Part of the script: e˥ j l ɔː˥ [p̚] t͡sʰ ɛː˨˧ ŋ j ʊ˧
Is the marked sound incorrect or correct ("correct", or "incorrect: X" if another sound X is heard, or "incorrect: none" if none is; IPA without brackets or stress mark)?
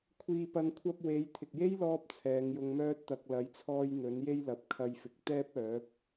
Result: correct